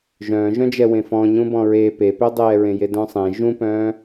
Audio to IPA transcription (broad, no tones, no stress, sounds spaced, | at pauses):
ʒ œ̃ː ʒ œ̃ d͡ʒ ɛ w ẽ f ɔ̃ ɲ ũ b ɔ̃ ɹ e p e p ø dˤ ɛː ɹ ẽ j e d œ̃ sˤ ẽ ʒ ũ p œ̃ː